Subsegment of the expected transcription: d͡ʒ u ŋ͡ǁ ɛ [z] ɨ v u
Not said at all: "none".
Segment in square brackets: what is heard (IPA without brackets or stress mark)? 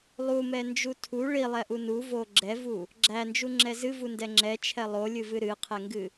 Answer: z